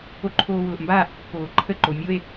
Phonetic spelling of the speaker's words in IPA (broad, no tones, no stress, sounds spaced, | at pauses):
o ǃʰ oː w ʊː ʔ m b aː ʔ pː oː ǃʰ ə ǃ o mʲ o e̯